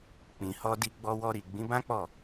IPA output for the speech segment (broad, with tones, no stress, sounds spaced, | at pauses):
k͡p ĩ˨ h ɔ˧ d i˧ ɡ͡b ɔ˧ w ɔ˧ ɾ i˨ ɡ͡b ĩ˨˦ b ã˦ k͡p ɔ˦˨